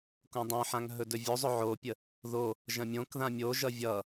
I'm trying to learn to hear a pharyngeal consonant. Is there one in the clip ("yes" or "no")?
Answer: yes